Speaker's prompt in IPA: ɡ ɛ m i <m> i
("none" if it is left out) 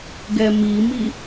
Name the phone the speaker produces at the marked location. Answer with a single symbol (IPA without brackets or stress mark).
m